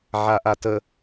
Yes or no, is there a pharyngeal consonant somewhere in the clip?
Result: yes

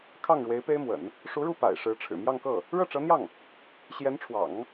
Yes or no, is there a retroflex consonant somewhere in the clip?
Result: yes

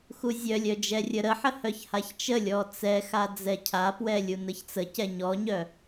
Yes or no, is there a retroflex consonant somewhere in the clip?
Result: no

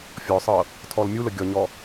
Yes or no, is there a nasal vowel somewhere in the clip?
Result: no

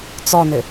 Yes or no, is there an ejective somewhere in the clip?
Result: no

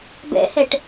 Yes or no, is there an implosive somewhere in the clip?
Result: no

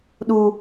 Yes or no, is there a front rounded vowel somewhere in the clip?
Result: no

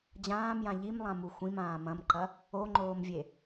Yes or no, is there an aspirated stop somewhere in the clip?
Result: no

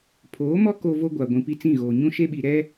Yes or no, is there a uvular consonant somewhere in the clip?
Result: no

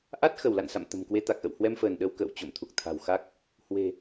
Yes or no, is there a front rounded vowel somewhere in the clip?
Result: no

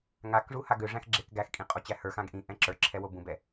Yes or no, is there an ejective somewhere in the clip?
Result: yes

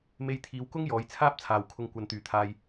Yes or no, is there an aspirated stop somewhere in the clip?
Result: yes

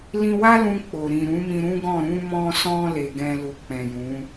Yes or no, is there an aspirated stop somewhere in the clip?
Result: no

